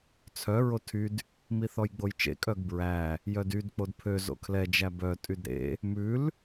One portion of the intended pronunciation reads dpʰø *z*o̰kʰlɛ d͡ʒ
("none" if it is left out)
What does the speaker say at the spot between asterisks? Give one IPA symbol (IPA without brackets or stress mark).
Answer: z